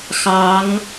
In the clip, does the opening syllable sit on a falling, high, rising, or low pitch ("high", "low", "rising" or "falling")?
rising